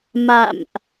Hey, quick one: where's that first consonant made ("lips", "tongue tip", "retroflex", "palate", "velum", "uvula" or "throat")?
lips